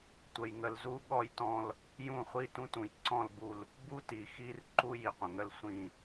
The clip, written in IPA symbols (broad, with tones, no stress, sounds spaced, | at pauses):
tʷ ə˨ j ŋ ə˨ l z u˦ ɠ ɔ˦ j t ɔ̃˦ l | j ũ˦˨ χʷ i˦ t ũ˦ t ũ˨ j ǀ ɔ̃˦˨ l b u˦˨ l | b u˦ t i˨ x i˦ r ǃ u˦ j i˨ qʷ ə̃˨ ŋ ə˦ l sʷ ĩ˦˨